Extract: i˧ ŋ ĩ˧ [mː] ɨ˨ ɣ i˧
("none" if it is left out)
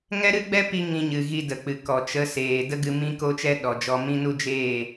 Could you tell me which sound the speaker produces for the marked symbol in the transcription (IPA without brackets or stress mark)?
ɲ